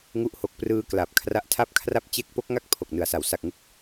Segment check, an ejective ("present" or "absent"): absent